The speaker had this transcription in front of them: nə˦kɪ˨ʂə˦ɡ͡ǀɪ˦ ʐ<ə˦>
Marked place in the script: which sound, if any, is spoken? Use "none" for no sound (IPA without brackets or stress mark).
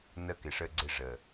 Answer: ə˨